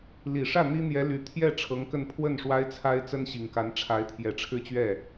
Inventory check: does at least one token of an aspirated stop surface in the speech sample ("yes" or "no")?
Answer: yes